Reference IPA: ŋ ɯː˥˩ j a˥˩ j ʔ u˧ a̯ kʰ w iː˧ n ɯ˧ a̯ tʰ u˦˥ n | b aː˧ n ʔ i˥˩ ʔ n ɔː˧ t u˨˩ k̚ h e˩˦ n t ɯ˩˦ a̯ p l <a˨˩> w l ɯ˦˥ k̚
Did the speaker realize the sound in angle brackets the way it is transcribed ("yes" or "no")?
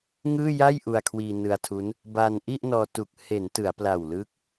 yes